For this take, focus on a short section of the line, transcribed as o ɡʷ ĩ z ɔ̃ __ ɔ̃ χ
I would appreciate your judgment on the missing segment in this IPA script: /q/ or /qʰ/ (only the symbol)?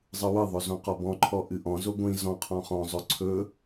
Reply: qʰ